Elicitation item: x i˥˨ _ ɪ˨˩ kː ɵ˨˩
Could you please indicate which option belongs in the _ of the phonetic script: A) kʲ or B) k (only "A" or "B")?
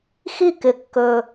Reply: B